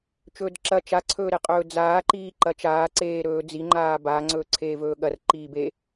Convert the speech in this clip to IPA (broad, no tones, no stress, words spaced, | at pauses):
t͡ʃɵːdǁɐ t͡ʃaǀʰɵːɾeqʼɵː d͡zaːǃiːǃɐ t͡ʃaːǀeːɾɵː d͡ziŋ͡ǃaː ba ŋ͡ǀɵːǀʰeːvɵːɠɐr ǃiːbe